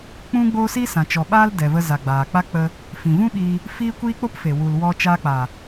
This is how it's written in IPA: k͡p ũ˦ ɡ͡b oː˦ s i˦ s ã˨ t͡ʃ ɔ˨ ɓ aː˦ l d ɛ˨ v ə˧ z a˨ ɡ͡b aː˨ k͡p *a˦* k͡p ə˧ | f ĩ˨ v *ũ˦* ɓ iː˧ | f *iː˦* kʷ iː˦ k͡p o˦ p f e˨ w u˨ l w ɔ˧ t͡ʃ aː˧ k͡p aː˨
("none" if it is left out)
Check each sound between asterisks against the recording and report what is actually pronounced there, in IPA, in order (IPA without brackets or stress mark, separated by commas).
a˦, ũ˦, iː˦